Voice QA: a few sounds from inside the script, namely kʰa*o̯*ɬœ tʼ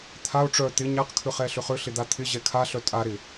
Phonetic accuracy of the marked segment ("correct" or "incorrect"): incorrect